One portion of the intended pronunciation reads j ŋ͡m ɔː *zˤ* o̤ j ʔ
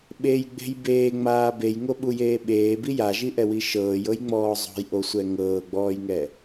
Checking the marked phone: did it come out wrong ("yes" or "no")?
no